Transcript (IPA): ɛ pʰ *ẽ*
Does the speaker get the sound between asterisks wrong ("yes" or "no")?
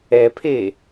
yes